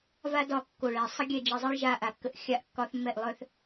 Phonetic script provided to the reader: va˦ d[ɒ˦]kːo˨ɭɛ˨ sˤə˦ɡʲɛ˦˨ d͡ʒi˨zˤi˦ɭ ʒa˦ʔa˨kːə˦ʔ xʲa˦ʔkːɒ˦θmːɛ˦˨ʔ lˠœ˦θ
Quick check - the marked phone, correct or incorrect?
incorrect: ɒ˦˨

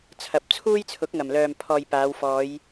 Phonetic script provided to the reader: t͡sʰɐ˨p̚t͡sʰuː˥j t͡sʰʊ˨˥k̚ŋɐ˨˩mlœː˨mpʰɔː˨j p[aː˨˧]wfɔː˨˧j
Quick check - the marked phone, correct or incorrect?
correct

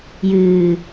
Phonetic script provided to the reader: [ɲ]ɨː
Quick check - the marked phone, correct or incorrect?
incorrect: j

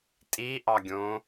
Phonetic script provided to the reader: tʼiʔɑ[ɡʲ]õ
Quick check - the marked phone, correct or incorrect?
correct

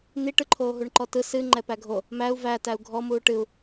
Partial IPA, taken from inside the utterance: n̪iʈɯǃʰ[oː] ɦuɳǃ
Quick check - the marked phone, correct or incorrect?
correct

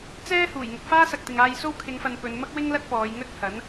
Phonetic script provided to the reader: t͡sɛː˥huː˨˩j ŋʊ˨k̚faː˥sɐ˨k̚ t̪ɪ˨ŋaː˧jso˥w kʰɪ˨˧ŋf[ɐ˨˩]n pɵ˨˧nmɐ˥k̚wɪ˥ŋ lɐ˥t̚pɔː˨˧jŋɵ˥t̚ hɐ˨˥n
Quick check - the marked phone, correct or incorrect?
incorrect: ɐ˨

